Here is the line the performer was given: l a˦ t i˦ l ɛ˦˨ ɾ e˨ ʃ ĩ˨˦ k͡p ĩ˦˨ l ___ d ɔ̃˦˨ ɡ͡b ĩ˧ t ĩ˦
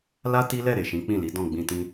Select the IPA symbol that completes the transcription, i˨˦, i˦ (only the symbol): i˨˦